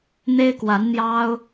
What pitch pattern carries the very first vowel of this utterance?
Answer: high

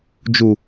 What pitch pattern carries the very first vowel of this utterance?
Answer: low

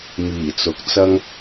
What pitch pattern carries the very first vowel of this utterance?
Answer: low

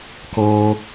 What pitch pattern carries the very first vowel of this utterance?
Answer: low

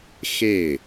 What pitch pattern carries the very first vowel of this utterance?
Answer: falling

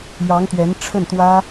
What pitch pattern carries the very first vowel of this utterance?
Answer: rising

